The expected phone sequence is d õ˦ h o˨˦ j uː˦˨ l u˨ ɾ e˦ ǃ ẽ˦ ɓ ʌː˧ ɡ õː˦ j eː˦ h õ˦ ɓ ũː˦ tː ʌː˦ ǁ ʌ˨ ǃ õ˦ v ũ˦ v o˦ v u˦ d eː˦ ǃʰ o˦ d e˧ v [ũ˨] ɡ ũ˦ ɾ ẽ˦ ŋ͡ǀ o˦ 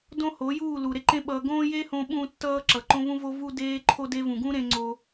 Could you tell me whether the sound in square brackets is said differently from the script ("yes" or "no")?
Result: no